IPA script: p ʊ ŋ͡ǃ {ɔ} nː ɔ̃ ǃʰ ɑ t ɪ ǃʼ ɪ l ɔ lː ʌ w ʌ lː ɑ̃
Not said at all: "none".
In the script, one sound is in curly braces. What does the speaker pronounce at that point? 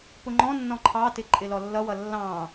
ɔ̃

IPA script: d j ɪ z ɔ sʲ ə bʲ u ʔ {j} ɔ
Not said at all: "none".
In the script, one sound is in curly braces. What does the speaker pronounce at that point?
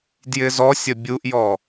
j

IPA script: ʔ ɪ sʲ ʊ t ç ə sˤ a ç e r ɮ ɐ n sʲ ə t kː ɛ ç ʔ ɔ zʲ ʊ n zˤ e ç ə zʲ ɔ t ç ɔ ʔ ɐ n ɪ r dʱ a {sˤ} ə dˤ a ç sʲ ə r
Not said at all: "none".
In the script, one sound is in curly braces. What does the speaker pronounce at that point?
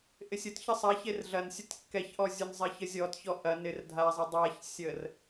zˤ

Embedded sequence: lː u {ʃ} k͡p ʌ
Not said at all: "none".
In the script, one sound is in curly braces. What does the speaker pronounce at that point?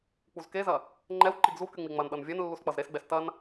s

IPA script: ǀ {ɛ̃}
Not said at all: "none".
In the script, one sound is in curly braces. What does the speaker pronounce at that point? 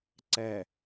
ɛ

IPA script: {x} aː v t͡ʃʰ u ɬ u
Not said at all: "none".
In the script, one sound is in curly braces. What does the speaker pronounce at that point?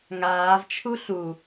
ŋ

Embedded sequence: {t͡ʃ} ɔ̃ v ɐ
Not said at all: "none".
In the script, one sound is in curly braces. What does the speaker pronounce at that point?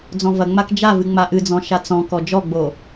d͡z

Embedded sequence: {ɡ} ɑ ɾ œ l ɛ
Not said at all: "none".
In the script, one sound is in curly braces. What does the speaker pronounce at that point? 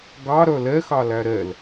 ɡ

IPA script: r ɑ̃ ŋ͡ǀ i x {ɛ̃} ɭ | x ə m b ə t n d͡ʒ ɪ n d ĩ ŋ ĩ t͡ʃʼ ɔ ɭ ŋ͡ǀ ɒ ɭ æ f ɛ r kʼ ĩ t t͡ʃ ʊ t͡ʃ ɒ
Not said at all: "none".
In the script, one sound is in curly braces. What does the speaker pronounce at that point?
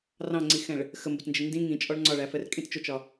ɛ̃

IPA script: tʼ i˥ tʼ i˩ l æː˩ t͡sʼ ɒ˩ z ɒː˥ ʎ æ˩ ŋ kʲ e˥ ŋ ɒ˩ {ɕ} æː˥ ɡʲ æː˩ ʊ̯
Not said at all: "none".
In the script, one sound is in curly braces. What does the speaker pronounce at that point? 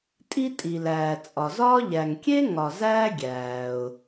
z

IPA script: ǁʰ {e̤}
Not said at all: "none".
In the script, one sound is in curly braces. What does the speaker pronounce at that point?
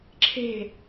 e̤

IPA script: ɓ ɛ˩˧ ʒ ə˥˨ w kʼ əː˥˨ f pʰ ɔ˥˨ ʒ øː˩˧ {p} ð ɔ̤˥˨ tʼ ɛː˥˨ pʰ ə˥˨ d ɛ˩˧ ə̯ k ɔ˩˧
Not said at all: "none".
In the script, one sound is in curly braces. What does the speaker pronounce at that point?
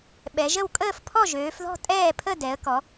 f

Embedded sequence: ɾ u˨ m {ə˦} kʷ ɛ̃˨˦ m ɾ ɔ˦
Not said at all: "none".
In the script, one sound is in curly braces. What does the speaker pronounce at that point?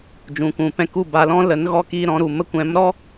ə˦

